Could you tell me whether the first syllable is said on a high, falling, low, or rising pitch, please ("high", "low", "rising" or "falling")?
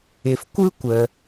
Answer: low